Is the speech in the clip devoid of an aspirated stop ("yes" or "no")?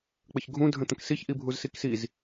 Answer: yes